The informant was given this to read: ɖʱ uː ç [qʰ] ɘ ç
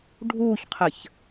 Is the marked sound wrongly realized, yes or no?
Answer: no